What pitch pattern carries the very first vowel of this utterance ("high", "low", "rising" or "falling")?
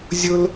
high